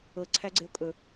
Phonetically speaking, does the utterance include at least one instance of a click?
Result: yes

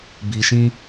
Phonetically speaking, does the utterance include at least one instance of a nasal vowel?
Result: yes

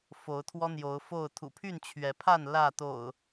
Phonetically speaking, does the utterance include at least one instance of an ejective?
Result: no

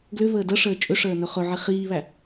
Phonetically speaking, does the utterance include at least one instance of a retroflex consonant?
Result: yes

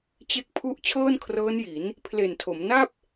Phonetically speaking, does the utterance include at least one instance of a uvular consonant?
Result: no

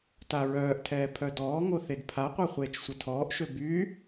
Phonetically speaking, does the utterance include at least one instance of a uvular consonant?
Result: yes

